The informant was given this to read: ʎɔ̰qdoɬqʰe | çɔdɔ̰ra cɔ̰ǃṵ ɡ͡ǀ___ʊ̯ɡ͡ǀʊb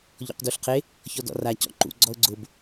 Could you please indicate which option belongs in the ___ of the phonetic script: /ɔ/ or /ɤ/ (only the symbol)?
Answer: ɔ